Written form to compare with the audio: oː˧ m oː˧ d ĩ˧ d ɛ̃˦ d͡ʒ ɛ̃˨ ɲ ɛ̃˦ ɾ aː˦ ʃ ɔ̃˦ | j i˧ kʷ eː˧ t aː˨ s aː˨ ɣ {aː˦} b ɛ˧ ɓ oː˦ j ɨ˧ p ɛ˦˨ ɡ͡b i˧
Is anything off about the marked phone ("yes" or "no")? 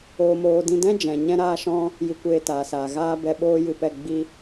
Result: no